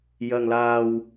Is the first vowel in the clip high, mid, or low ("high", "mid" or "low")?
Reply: low